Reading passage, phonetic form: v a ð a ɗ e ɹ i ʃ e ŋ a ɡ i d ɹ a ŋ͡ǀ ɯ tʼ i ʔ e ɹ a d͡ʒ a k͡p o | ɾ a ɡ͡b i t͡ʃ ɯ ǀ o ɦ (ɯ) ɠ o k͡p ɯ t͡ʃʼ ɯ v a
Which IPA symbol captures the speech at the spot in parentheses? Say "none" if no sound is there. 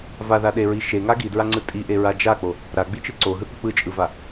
ɯ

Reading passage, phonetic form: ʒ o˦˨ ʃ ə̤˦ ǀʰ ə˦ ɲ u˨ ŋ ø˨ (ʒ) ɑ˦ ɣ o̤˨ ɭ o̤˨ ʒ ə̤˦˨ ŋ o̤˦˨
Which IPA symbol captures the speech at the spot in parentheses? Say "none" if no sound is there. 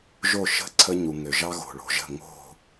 ʒ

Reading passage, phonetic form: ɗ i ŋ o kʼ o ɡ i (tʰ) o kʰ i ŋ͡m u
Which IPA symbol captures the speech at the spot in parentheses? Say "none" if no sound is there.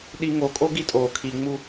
tʼ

